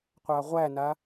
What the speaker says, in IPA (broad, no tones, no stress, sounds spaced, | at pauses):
qʷ a ʁʷ æ n a